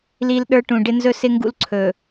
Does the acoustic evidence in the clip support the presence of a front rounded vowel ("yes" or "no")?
no